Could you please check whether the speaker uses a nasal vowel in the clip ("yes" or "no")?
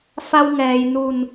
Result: no